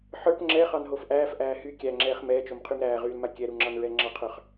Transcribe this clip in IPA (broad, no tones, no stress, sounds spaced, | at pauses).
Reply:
ħ ə˞ p ŋ͡ǁ ɛ χ ɑ n ɦ o f ʔ æː f ʔ æː h y kʲ æ ŋ͡ǁ ɛː χ m ɛː t͡ʃ o m qʰ y m ɾ æː ʁ yː l m a kʲ ɛ ɾ u ŋ͡ǁ ɑ n ɹ ɛ ŋ͡ǁ ɑ qʰ ə˞ χ